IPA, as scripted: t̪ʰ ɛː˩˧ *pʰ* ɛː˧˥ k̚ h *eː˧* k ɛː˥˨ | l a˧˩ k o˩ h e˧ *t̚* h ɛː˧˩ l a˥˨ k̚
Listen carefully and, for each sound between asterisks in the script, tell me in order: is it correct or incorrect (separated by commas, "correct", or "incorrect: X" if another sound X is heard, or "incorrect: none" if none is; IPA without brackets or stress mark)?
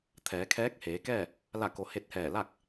incorrect: kʰ, incorrect: eː˩˧, correct